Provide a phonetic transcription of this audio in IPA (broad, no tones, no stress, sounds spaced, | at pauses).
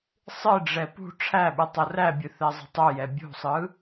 sˤ ɨ ɖ͡ʐ ɛ p ṳ ʈ͡ʂʰ æ ɓ ɨ tˤ o r æ bʲ ɨ θ ɛ zˤ ə̤ tˤ u j ɛ bʲ ṳ sˤ ɯ